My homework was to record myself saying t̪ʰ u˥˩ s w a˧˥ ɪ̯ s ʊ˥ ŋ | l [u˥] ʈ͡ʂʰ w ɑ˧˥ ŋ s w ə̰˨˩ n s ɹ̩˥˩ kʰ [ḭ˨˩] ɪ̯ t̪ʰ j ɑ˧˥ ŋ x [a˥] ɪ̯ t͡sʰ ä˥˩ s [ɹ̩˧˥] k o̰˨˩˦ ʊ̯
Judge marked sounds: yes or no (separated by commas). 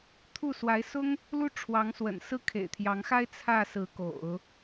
yes, no, yes, yes